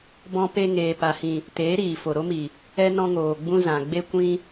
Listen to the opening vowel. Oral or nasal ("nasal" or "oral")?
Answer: nasal